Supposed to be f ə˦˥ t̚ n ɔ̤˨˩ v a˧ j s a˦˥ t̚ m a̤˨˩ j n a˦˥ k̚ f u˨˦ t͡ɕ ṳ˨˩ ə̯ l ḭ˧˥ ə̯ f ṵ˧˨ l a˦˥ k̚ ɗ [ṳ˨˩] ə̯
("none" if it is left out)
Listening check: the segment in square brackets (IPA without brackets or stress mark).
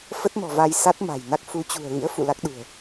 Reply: ṳ˨˩